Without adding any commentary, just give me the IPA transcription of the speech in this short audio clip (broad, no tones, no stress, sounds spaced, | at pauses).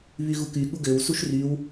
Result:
β y ɣ u k y ɠ u ɡ ø w s u ʃ r y w